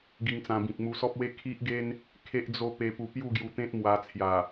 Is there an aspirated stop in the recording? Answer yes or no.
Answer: yes